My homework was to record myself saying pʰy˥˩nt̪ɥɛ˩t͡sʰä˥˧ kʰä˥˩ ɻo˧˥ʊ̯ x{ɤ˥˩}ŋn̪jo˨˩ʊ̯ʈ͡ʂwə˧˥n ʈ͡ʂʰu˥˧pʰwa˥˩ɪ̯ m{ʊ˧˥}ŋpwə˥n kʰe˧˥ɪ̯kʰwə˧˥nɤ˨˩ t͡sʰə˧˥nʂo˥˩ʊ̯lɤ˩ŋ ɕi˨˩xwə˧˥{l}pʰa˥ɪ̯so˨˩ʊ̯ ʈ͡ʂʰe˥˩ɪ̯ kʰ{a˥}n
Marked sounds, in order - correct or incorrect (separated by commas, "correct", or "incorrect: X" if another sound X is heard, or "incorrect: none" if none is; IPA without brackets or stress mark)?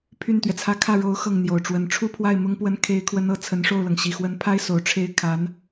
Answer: correct, incorrect: ʊ˥, incorrect: n, incorrect: a˧˥